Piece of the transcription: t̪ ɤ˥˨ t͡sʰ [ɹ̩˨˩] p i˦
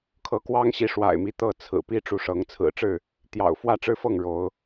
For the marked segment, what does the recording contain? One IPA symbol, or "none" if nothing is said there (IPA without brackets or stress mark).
ɹ̩˨˩